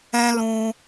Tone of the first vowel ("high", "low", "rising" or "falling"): high